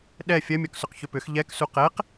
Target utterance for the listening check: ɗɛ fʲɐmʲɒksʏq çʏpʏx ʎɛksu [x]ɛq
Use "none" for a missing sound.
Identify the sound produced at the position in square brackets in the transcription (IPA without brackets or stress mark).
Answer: q